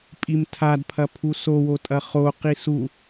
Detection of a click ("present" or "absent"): absent